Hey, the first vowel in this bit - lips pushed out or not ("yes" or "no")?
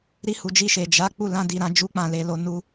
no